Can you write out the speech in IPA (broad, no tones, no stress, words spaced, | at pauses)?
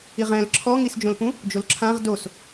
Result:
iʁɛ̃l ǁʰɔŋisd͡ʒõlpũ | d͡ʒolǁʰãʁ dos